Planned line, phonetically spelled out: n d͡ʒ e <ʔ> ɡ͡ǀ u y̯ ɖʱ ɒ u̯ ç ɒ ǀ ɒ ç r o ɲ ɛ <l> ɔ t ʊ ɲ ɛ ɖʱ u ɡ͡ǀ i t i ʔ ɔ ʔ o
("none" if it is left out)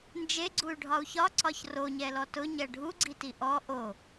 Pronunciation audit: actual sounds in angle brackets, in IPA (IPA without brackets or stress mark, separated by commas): none, l